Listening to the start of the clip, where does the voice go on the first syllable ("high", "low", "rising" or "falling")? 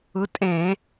rising